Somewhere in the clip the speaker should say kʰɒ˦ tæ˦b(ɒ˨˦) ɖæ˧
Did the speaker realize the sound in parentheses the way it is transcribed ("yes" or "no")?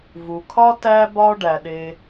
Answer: no